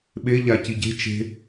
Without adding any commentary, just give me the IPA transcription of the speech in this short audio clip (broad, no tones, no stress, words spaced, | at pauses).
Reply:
ɓe ʎaciɟe̤ t͡ʃe̤